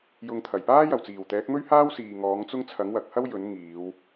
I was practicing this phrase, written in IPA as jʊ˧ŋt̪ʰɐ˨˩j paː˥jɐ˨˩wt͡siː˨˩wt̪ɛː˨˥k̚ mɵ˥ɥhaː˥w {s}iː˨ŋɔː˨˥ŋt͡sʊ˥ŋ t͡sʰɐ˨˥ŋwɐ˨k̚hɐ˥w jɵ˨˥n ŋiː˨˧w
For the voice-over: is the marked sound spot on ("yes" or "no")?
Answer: yes